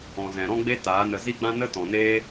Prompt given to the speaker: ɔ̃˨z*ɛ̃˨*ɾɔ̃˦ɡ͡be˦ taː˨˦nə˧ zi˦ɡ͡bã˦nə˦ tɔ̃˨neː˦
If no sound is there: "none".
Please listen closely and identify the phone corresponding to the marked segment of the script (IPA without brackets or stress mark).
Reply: ɛ̃˨